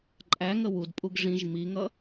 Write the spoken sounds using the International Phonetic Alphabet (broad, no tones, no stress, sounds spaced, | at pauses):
ǃʼ æ ŋ ə w u d pʼ u ɡ ʐ ĩ ʒ m i ŋ ʌ